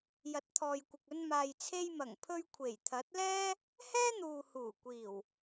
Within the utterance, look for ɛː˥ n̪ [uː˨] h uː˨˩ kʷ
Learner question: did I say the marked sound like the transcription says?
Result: yes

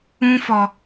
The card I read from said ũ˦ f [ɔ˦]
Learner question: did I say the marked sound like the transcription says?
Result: no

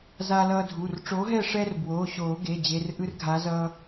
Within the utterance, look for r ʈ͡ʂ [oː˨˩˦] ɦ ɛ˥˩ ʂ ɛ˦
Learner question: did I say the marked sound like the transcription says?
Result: no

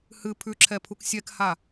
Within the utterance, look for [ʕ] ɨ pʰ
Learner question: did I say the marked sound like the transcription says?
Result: no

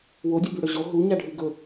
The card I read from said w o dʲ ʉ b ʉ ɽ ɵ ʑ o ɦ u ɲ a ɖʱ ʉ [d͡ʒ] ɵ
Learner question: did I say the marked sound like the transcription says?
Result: no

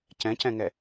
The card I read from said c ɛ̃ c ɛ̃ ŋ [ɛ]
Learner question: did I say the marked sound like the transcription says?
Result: yes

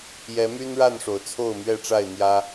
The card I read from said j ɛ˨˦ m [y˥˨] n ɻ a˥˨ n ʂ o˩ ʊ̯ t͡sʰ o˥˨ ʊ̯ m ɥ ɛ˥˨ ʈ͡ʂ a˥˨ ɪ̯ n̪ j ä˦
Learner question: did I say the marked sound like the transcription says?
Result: no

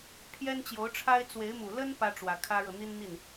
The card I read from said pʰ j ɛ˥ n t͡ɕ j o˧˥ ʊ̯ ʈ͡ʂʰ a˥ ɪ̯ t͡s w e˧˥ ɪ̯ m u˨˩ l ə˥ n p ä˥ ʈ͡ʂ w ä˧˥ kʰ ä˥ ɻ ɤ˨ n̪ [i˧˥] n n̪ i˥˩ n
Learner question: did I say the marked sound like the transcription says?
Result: no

